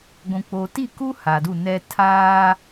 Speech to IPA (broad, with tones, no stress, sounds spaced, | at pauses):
ɡʷ ũ˨ k͡p o˨ t i˦˨ k u˦ h a˨ d u˦˨ n ɛ˦ tʰ aː˦